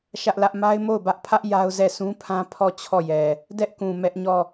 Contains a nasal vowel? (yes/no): yes